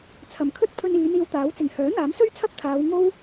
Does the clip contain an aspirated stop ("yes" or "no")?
yes